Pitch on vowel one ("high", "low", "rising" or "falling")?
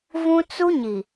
high